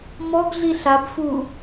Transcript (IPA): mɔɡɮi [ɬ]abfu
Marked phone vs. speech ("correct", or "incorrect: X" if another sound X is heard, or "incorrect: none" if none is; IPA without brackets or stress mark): correct